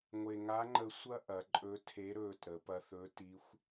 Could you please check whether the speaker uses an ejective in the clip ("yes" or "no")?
yes